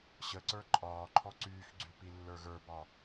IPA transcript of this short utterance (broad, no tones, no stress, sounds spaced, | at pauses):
ɕ ə ǀ ə˞ ǃʼ ɒː ǃʰ ɔ ǀ yː x ɡ͡ǀ y p i lː ə˞ ɣ ə˞ b ɒ